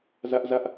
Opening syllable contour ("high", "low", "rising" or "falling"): high